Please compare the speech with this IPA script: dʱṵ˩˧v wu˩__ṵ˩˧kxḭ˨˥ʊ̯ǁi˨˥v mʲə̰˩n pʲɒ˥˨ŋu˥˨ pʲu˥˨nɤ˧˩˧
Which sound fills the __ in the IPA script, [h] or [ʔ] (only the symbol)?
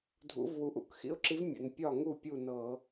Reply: ʔ